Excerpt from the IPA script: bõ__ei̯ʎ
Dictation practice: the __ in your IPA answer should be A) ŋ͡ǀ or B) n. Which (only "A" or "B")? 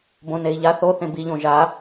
B